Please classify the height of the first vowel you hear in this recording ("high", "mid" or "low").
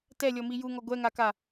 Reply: mid